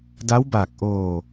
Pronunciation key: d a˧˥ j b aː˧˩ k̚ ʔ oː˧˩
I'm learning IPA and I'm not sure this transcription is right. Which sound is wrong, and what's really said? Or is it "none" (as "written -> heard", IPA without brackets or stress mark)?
j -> w